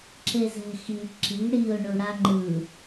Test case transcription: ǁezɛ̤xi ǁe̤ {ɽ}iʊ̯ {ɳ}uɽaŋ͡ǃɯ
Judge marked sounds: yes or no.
yes, yes

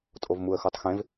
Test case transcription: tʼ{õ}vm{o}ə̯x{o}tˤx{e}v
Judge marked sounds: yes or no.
no, no, yes, no

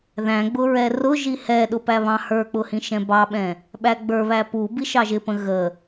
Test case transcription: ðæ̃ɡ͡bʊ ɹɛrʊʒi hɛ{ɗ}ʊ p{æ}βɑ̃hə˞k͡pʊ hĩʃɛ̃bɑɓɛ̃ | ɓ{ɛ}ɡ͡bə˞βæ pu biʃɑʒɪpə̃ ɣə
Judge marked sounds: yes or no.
yes, yes, no

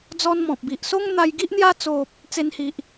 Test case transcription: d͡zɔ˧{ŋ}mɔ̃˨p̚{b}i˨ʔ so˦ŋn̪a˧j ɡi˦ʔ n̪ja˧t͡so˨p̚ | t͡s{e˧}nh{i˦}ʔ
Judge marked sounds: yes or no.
no, yes, yes, no

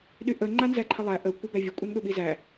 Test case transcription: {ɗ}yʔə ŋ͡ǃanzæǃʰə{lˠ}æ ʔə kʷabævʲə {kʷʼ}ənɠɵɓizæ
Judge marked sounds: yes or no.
yes, yes, yes

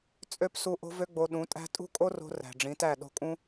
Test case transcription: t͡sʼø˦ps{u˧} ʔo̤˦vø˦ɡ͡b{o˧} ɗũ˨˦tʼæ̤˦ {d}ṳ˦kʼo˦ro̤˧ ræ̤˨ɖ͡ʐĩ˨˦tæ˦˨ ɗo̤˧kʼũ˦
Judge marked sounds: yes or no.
yes, yes, no

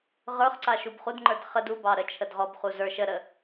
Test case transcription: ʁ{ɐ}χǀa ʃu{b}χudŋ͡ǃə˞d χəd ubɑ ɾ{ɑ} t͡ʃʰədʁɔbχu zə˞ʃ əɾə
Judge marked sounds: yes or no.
no, yes, no

